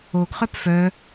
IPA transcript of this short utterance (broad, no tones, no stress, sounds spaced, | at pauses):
o ɡ χ œ p f œ